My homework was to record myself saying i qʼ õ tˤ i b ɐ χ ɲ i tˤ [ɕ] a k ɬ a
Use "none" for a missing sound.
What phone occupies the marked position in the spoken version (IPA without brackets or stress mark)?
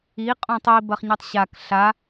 ɕ